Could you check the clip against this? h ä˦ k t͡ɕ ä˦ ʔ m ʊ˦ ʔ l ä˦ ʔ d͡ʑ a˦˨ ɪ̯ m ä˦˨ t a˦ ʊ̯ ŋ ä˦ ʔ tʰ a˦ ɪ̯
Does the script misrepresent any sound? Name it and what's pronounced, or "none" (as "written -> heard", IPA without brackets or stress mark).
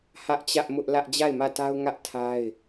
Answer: k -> ʔ